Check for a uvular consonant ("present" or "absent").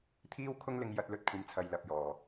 absent